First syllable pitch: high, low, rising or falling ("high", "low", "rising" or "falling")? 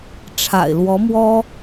low